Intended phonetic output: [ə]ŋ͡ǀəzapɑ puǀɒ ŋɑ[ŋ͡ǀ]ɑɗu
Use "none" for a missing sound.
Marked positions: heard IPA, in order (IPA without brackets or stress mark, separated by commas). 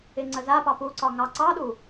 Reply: ɪ, ǀ